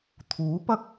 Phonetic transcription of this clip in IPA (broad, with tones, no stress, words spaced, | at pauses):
t̪ʰuː˨˥pɐ˥k̚